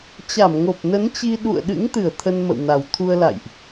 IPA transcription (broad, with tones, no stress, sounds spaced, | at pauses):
t͡ɕ a˧˩ m ŋ o˨˩ p̚ n ə˨˦ n t͡ɕ i˧ ɗ ṵ˧˨ ə̯ ɗ ɨ̰˧˥ ŋ t̪ ɨ˧˩ ə̯ t̪ʰ ə˧ n m ə̰˧˨ w n a˨˩ w t̪ʰ u˧ ə̯ l a̰˧˨ j ʔ